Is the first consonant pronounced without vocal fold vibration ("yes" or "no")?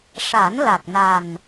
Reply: yes